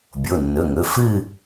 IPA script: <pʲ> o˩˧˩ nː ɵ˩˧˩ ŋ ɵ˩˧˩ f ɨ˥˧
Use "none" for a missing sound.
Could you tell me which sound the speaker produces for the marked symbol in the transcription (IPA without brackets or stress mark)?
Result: bʲ